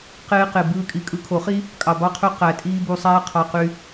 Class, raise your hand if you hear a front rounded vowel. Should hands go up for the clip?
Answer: yes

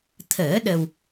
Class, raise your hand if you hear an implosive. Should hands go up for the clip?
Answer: yes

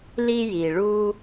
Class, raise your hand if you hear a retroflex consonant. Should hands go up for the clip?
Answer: yes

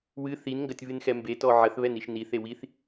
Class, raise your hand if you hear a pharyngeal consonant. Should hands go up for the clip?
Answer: yes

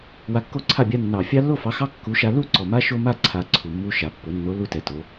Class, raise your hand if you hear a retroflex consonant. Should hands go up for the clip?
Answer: no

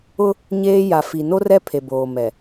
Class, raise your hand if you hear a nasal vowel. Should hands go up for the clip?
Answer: no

